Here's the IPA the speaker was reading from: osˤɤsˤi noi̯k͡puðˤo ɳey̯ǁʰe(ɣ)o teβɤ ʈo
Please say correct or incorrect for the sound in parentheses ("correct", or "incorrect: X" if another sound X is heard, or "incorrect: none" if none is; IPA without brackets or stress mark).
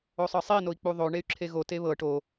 correct